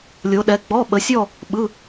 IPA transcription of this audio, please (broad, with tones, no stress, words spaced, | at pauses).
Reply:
lʲo˨˦ɗɛ˨˦ ɡ͡bɔ˧˥˧ ɓə˨˦sʲɔ˥˧ | ɓɯ˧˥˧